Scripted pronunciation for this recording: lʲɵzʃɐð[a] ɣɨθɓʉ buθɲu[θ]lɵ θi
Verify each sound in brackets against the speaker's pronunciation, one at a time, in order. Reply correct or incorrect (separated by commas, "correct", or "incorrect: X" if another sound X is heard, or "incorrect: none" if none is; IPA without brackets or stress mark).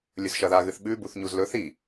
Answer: correct, incorrect: z